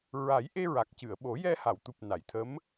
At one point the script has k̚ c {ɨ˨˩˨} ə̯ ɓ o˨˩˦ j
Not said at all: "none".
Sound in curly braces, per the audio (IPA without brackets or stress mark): ɨ˨˩˨